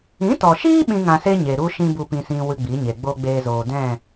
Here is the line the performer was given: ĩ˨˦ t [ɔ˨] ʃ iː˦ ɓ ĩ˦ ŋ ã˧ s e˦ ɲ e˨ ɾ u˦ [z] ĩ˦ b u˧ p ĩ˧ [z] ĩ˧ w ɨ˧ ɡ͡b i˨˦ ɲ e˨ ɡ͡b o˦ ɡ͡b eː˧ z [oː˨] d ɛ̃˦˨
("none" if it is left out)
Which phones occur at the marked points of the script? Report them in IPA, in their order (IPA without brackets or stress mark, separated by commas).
ɔ˨, ʃ, s, oː˨